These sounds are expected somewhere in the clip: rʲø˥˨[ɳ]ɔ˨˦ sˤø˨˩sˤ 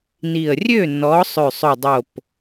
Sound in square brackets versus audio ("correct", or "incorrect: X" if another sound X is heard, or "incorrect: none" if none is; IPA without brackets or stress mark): incorrect: n